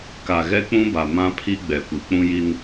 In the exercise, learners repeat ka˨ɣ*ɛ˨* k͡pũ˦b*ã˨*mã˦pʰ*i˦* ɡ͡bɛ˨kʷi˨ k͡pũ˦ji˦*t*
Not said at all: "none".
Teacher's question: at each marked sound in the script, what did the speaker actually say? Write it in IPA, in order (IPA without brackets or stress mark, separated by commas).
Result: ɛ˦, a˨, i˦, n